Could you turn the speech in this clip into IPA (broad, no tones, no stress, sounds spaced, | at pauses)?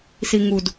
s i ŋ u d